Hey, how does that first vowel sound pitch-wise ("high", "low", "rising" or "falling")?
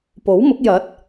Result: rising